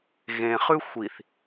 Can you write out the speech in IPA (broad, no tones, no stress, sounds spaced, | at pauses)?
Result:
ɣ ẽ χ ʉ xʷ i θ